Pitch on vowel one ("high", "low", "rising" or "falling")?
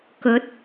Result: rising